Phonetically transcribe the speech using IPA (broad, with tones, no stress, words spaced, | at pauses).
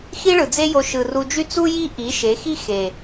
xi˦ɭɯ˨d͡ze˦jo˧ ʃɯ˨ru˧d͡ʒy˦ t͡su˦ji˦ ʔi˨˦ʃe˨˦xi˦ xe˨